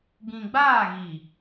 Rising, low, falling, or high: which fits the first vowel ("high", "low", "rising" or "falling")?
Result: low